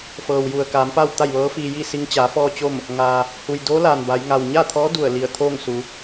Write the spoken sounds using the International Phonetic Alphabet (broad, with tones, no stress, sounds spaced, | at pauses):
f ɤː˩ w j u˩ ə̯ k aː˩˧ m p a˥˨ w t̪ a˥˨ j ʋ ɤː˧˥ f iː˧ j i˥˨ s i˧ ŋ t͡ɕ aː˩˧ f ɔː˧ t͡ɕ o˥˨ m | ŋ aː˩ | h u˩ j d oː˧˥ l aː˩ n b a˩˧ j ŋ a˩ w ɲ a˥˨ t̪ʰ ɔː˧˥ d u˧˩ ə̯ l i˧˩ ə̯ t̪ʰ oː˥˨ ŋ s u˩˧